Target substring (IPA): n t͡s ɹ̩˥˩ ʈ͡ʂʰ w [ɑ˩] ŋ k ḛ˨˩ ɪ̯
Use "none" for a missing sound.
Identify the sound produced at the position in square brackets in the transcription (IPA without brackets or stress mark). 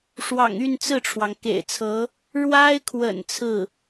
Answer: ɑ˩